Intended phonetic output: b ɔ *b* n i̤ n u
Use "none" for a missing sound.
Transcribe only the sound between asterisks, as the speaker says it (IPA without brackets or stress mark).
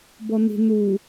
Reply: none